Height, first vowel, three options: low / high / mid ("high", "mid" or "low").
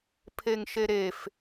mid